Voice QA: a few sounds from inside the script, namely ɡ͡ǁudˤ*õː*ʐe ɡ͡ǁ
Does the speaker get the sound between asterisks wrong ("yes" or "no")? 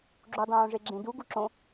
no